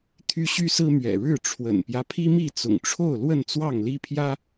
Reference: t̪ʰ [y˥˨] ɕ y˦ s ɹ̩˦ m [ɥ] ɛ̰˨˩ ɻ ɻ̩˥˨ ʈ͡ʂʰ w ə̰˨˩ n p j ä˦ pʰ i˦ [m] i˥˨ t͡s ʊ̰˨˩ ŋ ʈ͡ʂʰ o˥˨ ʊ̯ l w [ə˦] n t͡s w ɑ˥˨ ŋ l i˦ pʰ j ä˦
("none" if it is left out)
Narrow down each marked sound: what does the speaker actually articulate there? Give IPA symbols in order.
y˦, ɥ, m, ə˥˨

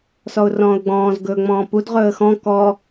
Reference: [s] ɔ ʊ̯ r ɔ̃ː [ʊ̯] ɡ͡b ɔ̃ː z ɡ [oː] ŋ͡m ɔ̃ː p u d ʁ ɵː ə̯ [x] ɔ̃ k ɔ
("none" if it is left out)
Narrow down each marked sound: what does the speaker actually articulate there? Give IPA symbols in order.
s, ʊ̯, ɵː, x

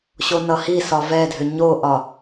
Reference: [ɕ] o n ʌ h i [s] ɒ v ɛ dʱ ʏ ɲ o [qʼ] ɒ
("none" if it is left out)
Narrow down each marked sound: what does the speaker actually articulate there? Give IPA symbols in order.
ɕ, s, ʔ

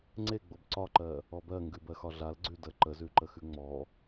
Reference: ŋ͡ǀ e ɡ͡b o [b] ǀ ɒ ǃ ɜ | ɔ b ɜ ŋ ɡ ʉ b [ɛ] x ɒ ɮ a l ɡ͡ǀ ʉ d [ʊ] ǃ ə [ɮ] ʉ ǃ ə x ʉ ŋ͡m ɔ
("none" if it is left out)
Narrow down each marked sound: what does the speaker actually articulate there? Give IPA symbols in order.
b, ɜ, ə, z

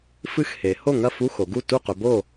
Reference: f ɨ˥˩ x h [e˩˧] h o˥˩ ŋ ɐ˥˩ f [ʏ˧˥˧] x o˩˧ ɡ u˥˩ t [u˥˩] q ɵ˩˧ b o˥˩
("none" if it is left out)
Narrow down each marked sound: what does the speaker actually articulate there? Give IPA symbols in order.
e˩˧, u˧˥˧, u˥˩

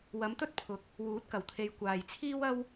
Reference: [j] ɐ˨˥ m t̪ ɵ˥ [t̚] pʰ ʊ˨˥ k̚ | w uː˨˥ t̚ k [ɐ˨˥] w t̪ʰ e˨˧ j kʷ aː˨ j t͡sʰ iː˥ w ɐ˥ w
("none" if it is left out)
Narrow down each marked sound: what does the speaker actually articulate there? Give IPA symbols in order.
w, t̚, ɐ˨˩

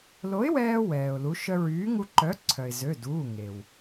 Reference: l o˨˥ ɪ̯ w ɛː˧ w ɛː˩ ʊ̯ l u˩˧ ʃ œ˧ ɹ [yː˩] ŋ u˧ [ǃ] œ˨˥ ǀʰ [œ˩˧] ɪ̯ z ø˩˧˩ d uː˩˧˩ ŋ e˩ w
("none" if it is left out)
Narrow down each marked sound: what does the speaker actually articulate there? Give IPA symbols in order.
yː˨˥, ǃ, œ˩

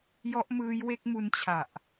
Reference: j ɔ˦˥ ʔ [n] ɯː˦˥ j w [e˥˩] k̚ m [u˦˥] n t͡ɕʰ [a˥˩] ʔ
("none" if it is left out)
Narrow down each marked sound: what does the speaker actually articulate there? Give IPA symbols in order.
m, e˦˥, u˦˥, a˨˩

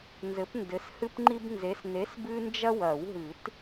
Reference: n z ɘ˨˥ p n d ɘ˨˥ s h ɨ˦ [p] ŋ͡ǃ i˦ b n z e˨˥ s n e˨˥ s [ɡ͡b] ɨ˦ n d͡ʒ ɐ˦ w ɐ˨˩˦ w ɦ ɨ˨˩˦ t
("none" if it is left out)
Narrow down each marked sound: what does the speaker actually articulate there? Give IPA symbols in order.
p, b

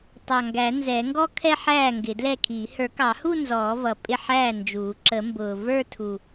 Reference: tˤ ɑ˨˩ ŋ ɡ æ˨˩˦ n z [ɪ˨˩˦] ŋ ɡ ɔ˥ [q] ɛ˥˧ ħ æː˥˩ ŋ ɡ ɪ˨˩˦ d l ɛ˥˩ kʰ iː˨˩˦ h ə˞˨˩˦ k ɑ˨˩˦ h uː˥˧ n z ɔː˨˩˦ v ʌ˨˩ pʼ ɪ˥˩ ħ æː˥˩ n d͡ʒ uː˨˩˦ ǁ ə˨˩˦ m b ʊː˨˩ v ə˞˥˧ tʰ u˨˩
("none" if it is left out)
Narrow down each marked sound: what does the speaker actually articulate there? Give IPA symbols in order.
ɛ˨˩˦, kʰ

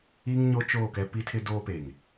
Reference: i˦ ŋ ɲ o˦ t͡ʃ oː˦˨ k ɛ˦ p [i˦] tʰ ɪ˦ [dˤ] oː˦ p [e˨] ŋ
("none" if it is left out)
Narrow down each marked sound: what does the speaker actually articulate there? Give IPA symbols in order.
i˦, d, e˨

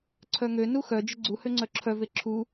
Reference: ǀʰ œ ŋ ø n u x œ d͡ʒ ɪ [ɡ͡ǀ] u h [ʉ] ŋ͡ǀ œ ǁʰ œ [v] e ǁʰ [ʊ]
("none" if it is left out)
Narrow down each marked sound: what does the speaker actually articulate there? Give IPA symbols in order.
ɡ͡ǀ, ø, v, u

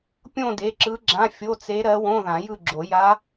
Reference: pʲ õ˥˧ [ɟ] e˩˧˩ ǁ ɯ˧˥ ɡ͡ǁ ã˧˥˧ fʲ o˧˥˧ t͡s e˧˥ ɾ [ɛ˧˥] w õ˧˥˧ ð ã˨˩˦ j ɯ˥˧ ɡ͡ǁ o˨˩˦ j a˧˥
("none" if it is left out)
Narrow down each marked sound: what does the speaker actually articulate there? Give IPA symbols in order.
d, ɜ˧˥

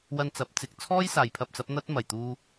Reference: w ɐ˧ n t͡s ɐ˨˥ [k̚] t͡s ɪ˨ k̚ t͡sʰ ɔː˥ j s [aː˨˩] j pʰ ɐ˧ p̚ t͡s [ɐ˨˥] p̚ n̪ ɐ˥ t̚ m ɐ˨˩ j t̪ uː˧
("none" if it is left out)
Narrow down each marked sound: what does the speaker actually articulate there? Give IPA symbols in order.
p̚, aː˨, ɐ˨˥

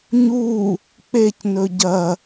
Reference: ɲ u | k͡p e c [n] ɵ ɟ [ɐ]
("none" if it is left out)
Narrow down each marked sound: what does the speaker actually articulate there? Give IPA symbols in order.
n, ɐ

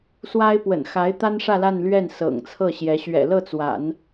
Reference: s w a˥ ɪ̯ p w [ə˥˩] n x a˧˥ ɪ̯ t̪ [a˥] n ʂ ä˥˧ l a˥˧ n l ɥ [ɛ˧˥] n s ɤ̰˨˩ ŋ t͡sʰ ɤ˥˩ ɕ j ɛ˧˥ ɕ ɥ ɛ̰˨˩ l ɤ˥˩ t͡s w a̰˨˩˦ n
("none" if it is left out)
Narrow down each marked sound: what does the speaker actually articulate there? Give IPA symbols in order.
ə̰˨˩, a˥, ɛ˥˩

